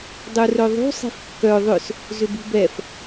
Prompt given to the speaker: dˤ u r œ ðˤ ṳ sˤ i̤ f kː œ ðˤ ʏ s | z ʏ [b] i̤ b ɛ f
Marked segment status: correct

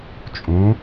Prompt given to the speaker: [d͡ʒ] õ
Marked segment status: incorrect: t͡ʃʼ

